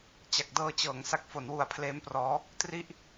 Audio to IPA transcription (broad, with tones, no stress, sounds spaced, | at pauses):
t͡ɕ a˨˩ k̚ d ɤː˧ t͡ɕ ɤː˩˦ ŋ s a˥˩ k̚ f o˩˦ n w u˨˩ a̯ pʰ l eː˦˥ m p r ɔː˦˥ | t r i˥˩ ʔ